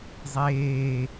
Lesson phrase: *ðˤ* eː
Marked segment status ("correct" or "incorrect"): incorrect